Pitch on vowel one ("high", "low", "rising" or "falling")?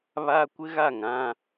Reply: high